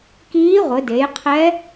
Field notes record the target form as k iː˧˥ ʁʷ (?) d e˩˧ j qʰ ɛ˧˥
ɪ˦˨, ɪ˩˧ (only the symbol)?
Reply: ɪ˩˧